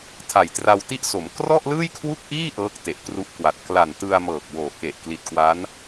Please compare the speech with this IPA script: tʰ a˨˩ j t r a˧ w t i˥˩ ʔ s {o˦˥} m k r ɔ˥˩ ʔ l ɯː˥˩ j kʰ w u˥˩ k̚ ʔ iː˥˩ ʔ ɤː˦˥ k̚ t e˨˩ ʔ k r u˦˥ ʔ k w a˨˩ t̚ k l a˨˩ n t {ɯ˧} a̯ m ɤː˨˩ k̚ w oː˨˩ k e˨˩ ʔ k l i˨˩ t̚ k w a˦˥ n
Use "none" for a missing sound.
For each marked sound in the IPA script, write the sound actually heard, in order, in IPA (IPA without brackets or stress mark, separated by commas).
o˩˦, ɯ˧